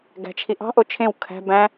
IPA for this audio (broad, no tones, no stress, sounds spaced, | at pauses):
ɡ æ̤ t͡ʃʰ i ʔ ɑ̤ ʔ o t͡ʃʰ ẽ w kʰ æ̤ b æ̃